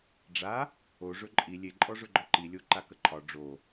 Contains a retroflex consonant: yes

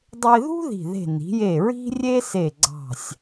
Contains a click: yes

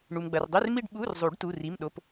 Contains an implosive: yes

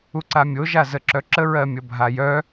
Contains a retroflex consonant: no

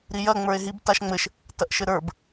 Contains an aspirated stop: no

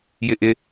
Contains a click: no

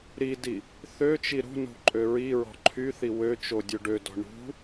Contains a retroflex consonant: yes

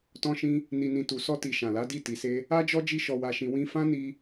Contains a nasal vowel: yes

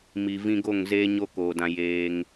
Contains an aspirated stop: no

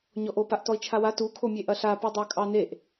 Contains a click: no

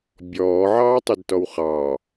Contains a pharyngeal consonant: yes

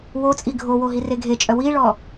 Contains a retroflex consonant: yes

